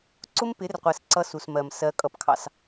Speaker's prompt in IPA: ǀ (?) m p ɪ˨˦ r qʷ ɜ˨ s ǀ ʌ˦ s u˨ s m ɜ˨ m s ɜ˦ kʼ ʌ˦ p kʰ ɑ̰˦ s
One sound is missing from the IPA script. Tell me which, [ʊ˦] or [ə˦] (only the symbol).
ʊ˦